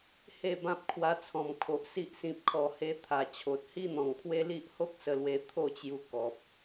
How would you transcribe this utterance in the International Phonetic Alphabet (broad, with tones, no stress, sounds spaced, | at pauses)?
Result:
h e˥˧ b ã˦ p̚ kʰ w a˧ t͡sʰ ɔ̃˨˩ m kʰ o˨ ʔ s i˦ ʔ s ĩ˨ p̚ kʰ ɔ˨˩ h e˧ t̪ʰ a˨˩ t͡ɕʰ o˨ t̚ h i˦ n̪ ɔ̃˨˩ ŋ pʰ w e˦ l i˦ ʔ h o˦ k̚ s ə˧ l w e˧ t̪ʰ o˥˧ t͡ɕ j u˧ k ɔ˨ p̚